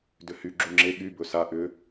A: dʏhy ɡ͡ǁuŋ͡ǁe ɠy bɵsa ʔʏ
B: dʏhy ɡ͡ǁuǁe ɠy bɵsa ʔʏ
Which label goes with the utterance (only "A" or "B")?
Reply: A